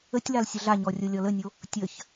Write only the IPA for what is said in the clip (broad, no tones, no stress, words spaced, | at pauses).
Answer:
ətʲlal sʲəɮaɲɔ rʲolʲɔlənʲo | tʲəç